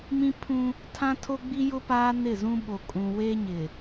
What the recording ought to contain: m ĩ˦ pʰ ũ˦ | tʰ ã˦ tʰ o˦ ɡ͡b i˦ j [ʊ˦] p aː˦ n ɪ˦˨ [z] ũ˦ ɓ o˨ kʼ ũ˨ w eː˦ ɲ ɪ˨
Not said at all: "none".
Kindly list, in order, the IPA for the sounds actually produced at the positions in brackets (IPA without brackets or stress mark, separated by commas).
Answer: ʊ˦, z